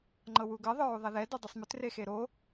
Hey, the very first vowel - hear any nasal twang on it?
no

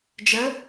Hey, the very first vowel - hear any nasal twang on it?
no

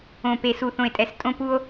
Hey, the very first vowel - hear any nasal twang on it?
yes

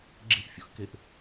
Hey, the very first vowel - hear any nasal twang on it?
no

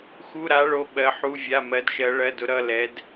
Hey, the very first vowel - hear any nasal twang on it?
no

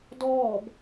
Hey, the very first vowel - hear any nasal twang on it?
no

